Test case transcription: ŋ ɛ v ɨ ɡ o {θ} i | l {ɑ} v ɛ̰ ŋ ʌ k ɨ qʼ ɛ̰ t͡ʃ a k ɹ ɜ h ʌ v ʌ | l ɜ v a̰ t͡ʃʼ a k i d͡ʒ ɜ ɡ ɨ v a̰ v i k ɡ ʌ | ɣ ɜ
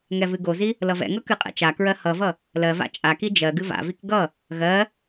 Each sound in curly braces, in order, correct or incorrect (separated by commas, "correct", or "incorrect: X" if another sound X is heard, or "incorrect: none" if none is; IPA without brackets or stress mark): incorrect: z, incorrect: ʌ